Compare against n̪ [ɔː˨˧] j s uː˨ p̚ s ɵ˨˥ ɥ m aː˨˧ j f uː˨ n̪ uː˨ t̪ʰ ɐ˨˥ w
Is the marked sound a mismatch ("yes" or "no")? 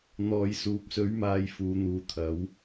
yes